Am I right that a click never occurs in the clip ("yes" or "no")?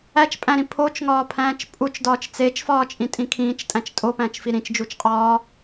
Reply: yes